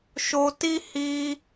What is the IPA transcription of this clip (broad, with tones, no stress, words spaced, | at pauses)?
ʃo˧ti˦ hi˧